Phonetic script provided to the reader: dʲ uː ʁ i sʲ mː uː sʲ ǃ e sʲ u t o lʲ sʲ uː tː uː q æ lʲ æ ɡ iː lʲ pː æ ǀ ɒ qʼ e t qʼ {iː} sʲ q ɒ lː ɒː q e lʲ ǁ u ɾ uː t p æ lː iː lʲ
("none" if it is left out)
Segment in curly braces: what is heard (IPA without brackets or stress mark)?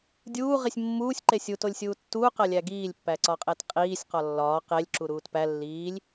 iː